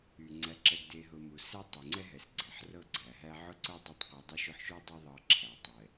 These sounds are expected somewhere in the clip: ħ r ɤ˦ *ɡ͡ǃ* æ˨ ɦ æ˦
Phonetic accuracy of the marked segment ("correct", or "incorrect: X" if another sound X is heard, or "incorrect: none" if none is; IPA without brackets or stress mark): incorrect: ɡ͡ǀ